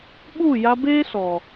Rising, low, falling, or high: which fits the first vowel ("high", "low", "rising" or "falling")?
falling